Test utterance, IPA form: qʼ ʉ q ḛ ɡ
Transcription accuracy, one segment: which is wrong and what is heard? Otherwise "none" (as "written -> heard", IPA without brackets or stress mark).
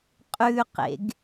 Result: none